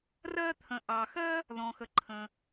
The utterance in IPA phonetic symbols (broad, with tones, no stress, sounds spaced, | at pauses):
r ɜ˧ t̪ʰ ə̃˩ ʔ ɑ˩ x ɜ˥ | ð ɔ̃˩ x ə˩ ǃʰ ə̃˩